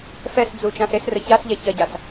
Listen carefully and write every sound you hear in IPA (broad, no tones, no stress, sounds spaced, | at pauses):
f ɛ s d͡z u t͡ʃ ã s e s r ə ç a s ʎ ɛ ç ɐ ɟ a s